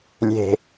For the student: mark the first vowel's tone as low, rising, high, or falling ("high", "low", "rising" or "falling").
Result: low